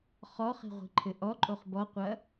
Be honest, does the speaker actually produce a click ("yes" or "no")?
yes